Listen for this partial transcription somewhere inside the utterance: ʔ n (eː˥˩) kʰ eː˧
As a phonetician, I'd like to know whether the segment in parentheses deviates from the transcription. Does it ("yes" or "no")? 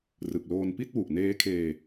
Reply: yes